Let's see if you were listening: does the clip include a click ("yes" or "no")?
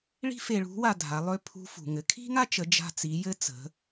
no